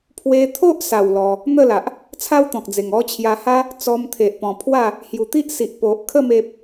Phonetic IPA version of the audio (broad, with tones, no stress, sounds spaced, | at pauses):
pʰ w e˧ t̪ʰ o˦ ʔ s a˨˩ w l ɔ˧ | n̪ ə˥˧ l a˨ ʔ | t͡sʰ a˦ w t̪ ɔ̃˨ k̚ d͡z e˨˩ ŋ ɔ˥˧ t͡ɕʰ j a˧ h a˦ | t͡s ɔ˧ m t̪ʰ e˨ ʔ p ɔ̃˨˩ pʰ w a˥˧ | h j u˨˩ t̪ i˦ ʔ s i˨ ʔ p o˨ ʔ kʰ ə˥˧ m e˦ p̚